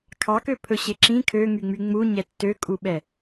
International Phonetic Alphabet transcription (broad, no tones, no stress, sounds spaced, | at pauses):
kʰ ɑ k ø pʰ ɵ ɕ e ǁ ĩ kʰ ø ŋ y ŋ͡m y ŋ͡m u ɲ ɛ tː ø kʼ u ɓ ɛ